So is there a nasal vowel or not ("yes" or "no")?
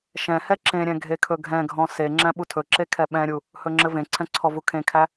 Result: yes